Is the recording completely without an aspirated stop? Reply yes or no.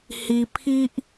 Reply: no